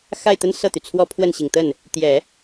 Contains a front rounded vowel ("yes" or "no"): yes